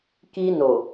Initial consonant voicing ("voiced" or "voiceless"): voiceless